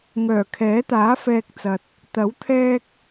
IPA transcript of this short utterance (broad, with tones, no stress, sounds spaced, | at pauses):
ŋ œː˨˩ kʰ ɛː˨˥ t̪ aː˨˥ f ɛː˨ k̚ t͡s ɐ˨ t̚ | t̪ ɐ˨˥ w t̪ʰ ɛː˧ k̚